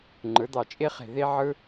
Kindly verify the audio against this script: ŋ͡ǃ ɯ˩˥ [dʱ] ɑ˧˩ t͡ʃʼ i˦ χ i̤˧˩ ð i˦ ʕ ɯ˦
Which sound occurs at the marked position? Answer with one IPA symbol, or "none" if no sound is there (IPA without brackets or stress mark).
d̪